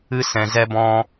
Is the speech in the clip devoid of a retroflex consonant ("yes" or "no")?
yes